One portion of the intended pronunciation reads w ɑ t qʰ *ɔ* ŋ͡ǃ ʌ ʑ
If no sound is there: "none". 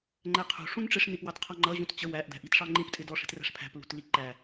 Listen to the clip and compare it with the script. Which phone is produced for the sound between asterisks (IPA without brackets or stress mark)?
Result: ɔ